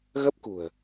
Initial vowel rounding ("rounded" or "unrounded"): unrounded